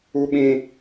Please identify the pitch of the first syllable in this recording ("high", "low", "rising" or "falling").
high